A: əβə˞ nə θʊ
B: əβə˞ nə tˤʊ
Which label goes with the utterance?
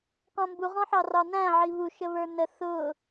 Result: A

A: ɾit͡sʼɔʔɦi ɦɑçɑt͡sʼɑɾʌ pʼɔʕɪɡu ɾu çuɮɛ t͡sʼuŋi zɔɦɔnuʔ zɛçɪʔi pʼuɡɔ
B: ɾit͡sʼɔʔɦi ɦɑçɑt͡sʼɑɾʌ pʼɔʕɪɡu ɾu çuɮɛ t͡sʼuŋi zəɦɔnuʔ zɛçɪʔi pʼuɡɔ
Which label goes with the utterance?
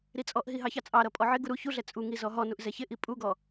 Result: A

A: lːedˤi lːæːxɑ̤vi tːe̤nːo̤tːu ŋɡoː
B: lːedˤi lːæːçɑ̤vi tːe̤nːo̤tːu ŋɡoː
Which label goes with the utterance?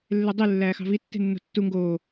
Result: A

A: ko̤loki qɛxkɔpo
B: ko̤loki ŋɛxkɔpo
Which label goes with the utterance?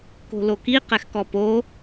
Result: A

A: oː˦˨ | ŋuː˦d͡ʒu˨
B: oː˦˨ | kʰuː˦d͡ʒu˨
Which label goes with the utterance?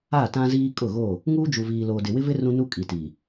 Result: A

